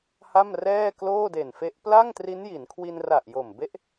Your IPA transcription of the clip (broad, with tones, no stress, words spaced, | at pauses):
ha˥˩mrɛː˥˩ kloː˥˩de˨˩nfe˦˥ʔ pla˥˩ŋtri˦˥nji˩˦nkʰwi˧n ra˨˩ʔjo˨˩mbe˦˥ʔ